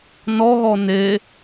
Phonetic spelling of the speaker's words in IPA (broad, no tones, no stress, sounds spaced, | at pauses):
n ɔ ɣ ɔ n e